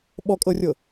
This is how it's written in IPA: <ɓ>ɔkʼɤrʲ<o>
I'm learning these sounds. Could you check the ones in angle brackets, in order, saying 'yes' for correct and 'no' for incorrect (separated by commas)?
yes, no